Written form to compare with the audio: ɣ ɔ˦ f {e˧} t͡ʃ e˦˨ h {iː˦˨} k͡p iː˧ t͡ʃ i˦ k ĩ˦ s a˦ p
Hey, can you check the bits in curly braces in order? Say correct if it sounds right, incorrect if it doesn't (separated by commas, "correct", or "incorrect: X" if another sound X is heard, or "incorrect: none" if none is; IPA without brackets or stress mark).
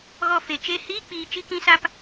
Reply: correct, incorrect: iː˦